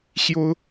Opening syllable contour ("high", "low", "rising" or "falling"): high